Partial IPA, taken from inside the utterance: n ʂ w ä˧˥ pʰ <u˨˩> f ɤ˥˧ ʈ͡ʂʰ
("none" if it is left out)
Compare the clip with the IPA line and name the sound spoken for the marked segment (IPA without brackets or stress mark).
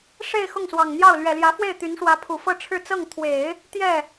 u˨˩